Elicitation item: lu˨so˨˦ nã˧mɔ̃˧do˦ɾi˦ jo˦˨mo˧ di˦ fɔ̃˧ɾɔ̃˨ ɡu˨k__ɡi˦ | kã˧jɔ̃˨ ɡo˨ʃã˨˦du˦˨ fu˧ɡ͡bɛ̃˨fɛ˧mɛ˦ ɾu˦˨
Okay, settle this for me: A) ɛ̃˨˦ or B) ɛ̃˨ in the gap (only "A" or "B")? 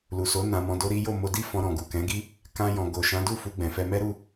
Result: A